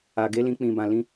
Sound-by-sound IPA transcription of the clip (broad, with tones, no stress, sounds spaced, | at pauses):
a˨ ɡ e˨˦ l ĩ˧ k͡p ĩ˨ b ã˨ l ĩ˧